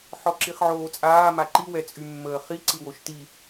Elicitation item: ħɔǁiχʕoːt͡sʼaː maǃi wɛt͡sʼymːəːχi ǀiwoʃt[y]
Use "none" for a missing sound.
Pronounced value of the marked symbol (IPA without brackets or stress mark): i